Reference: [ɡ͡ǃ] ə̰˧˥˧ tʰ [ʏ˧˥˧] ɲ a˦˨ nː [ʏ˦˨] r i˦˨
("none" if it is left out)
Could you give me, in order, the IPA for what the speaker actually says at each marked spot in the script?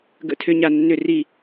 ɡ, ʏ˧˥˧, ʏ˦˨

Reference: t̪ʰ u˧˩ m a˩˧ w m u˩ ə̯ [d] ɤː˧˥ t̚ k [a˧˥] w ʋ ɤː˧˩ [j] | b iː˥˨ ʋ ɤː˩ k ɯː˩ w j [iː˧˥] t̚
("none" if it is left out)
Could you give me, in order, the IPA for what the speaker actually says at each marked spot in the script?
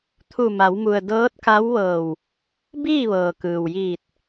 d, a˧˥, w, iː˧˩

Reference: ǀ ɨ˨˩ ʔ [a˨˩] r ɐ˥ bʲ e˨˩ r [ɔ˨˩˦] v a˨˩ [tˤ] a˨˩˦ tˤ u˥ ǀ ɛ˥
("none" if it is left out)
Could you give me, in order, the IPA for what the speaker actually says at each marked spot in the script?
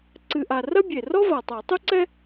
a˨˩, ɔ˥, tˤ

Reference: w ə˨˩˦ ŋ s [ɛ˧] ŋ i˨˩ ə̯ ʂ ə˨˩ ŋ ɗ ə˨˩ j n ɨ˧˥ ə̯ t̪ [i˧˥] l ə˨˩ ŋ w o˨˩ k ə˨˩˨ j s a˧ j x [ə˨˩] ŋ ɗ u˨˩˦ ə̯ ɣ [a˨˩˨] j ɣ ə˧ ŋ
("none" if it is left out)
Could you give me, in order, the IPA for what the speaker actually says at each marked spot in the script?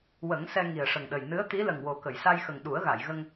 ɛ˧, i˧˥, ə˨˩, a˨˩˨

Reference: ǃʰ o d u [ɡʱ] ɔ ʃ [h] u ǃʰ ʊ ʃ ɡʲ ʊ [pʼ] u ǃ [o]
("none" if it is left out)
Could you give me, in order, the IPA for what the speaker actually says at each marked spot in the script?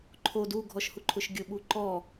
ɡʱ, h, ɓ, ɔ

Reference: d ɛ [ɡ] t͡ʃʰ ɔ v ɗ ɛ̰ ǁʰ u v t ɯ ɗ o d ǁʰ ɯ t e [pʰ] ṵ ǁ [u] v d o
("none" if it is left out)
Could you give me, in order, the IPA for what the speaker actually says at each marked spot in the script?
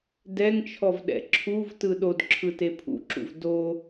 ŋ, pʰ, ṵ

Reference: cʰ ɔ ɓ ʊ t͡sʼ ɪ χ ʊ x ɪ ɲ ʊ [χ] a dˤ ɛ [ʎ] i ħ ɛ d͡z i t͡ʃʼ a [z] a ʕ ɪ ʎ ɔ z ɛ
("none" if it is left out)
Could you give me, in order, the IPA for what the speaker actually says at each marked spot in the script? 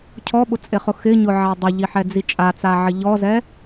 ʕ, ʎ, t͡s

